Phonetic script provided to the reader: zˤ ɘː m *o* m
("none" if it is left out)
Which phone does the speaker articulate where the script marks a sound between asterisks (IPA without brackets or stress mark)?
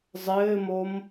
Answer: o